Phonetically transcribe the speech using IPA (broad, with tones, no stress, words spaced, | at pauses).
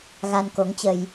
ɣa˧nko˨˦ŋt͡ɕə˧j